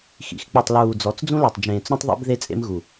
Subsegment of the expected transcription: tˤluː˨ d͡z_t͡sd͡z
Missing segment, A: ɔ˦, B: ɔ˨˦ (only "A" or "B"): B